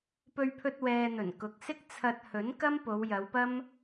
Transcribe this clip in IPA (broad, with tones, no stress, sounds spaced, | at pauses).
p ɵ˧ ɥ pʰ ɵ˧ t̚ w ɛː˨ n̪ ɵ˨˩ n k ʊ˨˥ k̚ s ɪ˥ k̚ t͡sʰ ɐ˧ t̚ h ɵ˨˥ n k ɐ˥ m p o˨˧ w j ɐ˨˧ w p ɐ˥ m